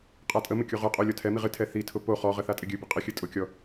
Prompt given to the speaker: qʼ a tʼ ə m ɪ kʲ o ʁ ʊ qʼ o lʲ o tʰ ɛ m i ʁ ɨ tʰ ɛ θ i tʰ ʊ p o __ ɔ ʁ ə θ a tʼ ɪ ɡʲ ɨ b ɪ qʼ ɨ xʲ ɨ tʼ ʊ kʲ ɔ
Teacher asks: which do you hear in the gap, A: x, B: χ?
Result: B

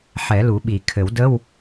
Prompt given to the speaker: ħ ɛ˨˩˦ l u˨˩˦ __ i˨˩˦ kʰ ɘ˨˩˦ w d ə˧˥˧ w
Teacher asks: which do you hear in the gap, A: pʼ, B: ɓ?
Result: B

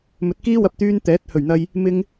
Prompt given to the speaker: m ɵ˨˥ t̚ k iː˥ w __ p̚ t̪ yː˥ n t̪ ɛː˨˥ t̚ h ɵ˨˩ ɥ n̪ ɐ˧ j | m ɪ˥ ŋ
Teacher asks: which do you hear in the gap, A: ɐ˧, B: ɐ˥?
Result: A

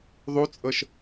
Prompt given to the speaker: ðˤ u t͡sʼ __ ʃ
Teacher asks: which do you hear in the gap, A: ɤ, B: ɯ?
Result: A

